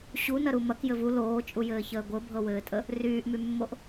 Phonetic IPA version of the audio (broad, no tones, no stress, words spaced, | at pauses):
ɕunɐɾu mɐk jɘvu loːt͡ʃʼujɘːçəː ɡʷɘbʱɤwɘːtʼə | ryːʔmymːoʔ